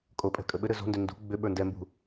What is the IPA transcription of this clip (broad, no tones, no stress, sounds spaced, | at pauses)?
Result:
kʼ o pʼ ɛ̤ kʼ ə ɓ ɘ ɾ ɘ z o̤ n d ʏ n d ṳ ɡ͡b ʏ ɓ ə˞ n d ɛ m b ṳ